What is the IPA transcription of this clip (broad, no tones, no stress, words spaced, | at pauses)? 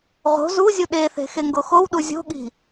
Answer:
ʁo̤ zuzʲu ɗeθe̤ xeŋɡoxowɗu zʲo̤ɠi̤